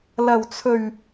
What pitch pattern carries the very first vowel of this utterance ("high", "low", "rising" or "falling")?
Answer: low